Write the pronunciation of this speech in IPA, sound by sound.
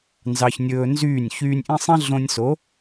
nzɑ˧çnʲɵː˧nzyː˦˨nʲ çyː˧nʲʔĩ˦ sˤẽ˦ɮõ˧nʲso˨˦

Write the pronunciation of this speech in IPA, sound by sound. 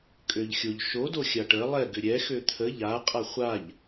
kʼøʎxʲoʎ ʃo doxʲaʈə lˠɛ ɡʏɾʲɛ xøt̪ʰə ʎa qʼaχʷaʎ

